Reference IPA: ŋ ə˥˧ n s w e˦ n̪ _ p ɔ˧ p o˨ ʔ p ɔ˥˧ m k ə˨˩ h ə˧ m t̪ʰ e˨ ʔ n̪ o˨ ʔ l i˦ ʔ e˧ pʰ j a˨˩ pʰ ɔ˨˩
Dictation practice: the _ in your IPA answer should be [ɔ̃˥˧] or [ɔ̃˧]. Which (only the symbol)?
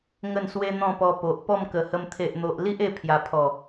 ɔ̃˥˧